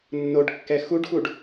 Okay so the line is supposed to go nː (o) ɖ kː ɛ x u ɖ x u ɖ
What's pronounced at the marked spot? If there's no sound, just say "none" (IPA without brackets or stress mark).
o